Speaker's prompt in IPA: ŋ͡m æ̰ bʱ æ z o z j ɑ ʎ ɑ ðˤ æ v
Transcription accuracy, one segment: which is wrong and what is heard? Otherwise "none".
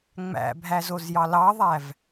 ʎ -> l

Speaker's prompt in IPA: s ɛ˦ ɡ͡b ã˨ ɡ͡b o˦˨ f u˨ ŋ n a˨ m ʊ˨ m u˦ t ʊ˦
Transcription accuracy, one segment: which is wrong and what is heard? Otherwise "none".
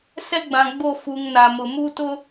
none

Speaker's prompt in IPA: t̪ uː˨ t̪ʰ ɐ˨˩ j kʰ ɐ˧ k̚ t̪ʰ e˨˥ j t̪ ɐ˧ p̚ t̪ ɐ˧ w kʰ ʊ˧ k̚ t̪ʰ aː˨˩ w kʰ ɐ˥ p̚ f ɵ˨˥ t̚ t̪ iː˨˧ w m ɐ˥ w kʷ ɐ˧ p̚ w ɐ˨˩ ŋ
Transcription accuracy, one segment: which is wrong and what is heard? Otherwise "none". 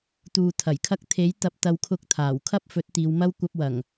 none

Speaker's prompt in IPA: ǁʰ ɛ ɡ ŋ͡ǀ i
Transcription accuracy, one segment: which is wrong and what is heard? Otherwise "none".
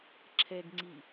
none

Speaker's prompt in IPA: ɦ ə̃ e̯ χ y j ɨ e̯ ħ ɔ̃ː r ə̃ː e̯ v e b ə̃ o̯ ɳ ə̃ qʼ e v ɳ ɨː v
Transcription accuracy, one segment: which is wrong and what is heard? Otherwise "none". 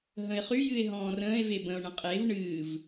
ħ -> ɦ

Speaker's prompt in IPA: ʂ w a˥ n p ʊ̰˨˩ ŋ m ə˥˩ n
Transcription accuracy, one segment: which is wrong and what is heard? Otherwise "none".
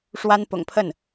m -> pʰ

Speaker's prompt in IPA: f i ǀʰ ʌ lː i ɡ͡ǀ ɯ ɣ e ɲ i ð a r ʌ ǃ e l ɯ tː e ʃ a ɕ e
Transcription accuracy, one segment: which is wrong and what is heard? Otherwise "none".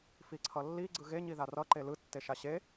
none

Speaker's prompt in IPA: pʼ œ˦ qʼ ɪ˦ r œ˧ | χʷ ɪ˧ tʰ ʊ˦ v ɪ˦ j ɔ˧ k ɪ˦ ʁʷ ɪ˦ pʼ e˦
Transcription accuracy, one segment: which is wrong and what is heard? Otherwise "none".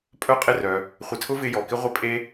none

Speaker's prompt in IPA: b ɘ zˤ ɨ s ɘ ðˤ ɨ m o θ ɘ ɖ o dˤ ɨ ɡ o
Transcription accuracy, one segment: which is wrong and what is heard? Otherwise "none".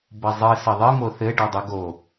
none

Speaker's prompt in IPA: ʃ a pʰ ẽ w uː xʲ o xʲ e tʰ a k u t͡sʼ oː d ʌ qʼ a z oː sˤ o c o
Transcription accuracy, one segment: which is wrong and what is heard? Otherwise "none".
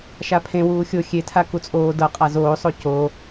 none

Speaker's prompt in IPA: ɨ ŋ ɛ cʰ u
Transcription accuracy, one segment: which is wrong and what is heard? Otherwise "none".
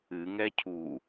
none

